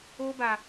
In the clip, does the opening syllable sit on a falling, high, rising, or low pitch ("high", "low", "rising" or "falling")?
high